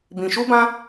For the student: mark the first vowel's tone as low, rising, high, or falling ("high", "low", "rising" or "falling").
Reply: low